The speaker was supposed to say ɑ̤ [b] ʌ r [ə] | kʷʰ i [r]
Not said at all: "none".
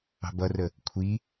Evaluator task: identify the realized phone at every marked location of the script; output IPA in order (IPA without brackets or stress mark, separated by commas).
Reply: b, ə, none